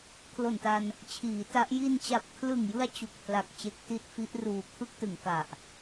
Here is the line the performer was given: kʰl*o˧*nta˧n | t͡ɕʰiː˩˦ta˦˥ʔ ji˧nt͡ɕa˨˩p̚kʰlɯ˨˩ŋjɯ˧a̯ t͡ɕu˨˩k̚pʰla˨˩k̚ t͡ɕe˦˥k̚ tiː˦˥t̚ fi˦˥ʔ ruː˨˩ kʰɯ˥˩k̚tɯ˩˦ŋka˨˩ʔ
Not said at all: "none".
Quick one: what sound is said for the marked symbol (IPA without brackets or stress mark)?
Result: o˨˩